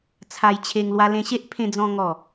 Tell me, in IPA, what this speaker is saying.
t͡sʰa˧jt͡ɕʰe˧ŋ lwa˧lẽ˧ɕe˦ʔ pʰẽ˧d͡zɔ̃˧ ŋɔ˨˩

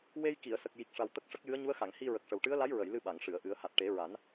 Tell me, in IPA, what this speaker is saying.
we˧jki˨˩˨ə̯sə˨˩k̚ ji˨˩k̚ʂa˨˩w t̪ə˦˥k̚ʂə˦˥k̚ jɨ˧˥ə̯ɲu˧˥ə̯xa˨˩˨ŋ hi˧ɹə˨˩k̚ʂə˨˩w ʈɨ˧˥ə̯la˧˥jɹə˨˩˨j lɨ˧ ɓa˨˩˨ŋʂɨ˨˩˨ə̯ʔɨ˨˩˦ə̯ ha˨˩t̚ʈe˨˩˦ɹa˨˩˦n

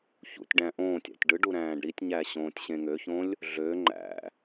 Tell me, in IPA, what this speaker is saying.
çṵtʲɖæ̃ ʔõːtʲæ̰tʲ ɖɯɖu ɾæ̃ːɖɾitʲɲæ ɕõːtʲɕẽŋøçõlʲ | ɮø ŋ͡ǃæ̰

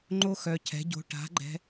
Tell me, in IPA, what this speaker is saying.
ŋ͡ǃo˦xœ˨cʰɛ̤˨˦ɟo̤˧ ʈa̤˨˦ɡ͡ǃɛ̤˧

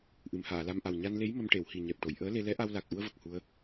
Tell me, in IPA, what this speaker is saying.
ʔɨ˨˩˨mhaː˨˩˨la˧mʔa˨˩w ɲa˧nle˧˥j mə˧mʈe˨˩˨whi˨˩ ɲɛ˨˩p̚ʈo˨˩˨j ʔəː˧˥le˧ lɛ˧˥ʔa˧wla˨˩k̚ʔu˧ə̯ və˨˩k̚hu˧ə̯

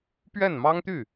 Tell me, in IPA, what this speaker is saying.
pɥɛ˥˩nmɑ˥ŋt̪y˥˩

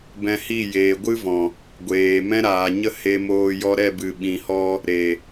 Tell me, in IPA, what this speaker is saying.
bɛ̃˧hi˦˨ jeː˨ ɡʷɨ˦vɔ̃˨ | ɡʷeː˨mɛ̃˦ ɾaː˨ɲə˦ he˧moː˧ jɔ˧ɾɛ˦˨bɨ˨ ɓĩ˨ hɔ˧ | ɾe˨

